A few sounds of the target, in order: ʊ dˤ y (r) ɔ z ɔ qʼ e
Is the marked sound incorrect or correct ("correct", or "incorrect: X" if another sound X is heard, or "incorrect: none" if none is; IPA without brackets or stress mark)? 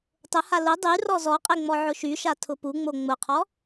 correct